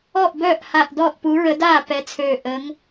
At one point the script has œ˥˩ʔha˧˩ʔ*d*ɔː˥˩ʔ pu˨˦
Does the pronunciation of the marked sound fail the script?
no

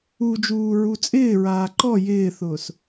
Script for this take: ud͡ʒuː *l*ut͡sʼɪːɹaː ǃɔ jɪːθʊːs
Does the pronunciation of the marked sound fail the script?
yes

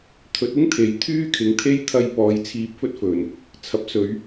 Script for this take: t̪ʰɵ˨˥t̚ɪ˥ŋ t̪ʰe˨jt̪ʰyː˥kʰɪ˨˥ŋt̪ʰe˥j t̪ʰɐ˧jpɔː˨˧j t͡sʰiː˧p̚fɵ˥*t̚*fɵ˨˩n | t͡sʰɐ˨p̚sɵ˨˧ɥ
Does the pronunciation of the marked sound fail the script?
no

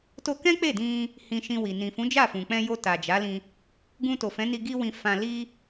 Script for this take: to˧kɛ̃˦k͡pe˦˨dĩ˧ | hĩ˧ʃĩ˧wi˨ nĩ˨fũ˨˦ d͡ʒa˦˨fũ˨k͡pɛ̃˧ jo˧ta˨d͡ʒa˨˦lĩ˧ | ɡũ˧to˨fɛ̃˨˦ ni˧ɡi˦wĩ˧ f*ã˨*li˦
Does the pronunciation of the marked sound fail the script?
yes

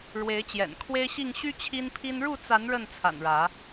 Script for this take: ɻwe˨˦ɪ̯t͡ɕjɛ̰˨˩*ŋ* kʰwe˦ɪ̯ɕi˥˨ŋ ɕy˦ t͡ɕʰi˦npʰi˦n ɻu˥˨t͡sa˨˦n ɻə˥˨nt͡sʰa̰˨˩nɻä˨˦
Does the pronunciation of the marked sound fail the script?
yes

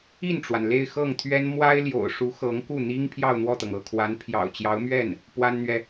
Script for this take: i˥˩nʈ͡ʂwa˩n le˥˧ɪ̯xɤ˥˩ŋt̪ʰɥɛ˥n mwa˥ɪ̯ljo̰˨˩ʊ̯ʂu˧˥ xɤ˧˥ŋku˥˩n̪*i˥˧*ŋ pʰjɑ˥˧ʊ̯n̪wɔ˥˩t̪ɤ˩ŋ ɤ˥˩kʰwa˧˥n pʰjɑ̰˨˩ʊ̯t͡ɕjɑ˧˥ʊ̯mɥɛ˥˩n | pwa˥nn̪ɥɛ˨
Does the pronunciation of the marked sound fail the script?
yes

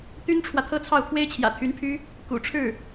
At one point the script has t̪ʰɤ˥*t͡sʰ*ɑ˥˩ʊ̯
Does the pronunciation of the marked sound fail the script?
no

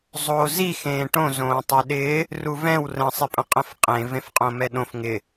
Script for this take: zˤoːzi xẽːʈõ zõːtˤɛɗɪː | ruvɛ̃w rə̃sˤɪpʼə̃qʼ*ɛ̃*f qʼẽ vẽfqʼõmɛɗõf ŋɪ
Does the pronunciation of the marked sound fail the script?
yes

